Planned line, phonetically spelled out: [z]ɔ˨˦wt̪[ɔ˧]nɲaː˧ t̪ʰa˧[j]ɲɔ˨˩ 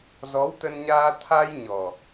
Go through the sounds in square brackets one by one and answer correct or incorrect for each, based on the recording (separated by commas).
correct, incorrect, correct